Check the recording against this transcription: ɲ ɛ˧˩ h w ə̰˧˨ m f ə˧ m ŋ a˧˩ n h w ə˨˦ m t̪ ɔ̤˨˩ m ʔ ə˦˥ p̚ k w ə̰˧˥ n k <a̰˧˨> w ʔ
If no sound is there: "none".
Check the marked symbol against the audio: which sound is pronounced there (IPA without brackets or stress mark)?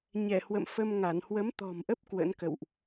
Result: ə̰˧˨